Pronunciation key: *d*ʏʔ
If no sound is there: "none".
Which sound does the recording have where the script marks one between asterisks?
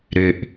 ɾ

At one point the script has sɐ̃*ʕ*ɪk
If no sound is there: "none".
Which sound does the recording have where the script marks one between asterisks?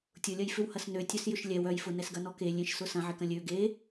ʕ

